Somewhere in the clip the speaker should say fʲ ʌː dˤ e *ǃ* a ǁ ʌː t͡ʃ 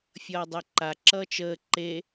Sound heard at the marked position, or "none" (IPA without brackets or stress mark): ǃ